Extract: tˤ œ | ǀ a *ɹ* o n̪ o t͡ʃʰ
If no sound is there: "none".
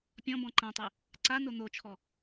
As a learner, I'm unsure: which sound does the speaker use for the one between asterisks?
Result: n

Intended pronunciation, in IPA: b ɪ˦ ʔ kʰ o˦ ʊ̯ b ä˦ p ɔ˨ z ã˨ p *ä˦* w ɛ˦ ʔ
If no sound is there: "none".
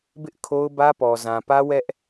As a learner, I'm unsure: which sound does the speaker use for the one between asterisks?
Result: ä˦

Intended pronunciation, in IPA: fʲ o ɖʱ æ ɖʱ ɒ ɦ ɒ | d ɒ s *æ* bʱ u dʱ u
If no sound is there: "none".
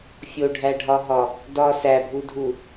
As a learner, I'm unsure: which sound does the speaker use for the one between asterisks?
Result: æ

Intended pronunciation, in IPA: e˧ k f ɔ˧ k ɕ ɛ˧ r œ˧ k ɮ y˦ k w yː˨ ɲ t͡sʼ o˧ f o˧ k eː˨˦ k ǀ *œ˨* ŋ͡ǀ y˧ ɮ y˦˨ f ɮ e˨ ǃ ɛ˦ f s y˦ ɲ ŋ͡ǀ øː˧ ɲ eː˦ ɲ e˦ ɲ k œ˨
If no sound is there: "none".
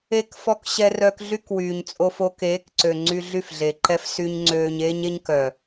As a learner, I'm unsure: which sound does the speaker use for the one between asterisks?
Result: ø˨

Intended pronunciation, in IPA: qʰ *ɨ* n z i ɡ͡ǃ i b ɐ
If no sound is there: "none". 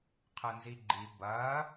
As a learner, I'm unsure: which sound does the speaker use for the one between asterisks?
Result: ə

